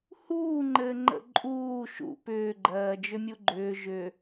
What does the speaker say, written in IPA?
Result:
huːŋ͡ǃɘː ŋ͡ǃə̰ ǃʼuː ʃṵ pʏːɡ͡ǃɜːd͡ʒʏmʲu ɡ͡ǃʏː ʒʏ

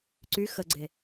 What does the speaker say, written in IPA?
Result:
ǀy xəɡ͡ǀe

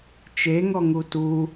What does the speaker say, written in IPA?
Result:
t͡ʃeŋɔŋu tu

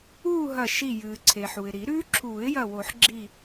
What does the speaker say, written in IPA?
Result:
uː˥˧ɦɐ˧˩ ʃi˧˩jɨː˩ ǀʰe˩ħu˩ɪ̯ ɾi˨˩˦ɾʉː˦˥ ǁʰuː˨˩˦ɪ̯jɐ˧˩wo˨˩˦ħ ɡ͡ǁi˧˩

